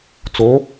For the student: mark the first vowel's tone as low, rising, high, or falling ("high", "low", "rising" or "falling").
rising